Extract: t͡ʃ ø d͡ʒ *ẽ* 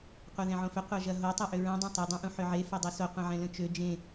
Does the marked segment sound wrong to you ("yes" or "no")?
no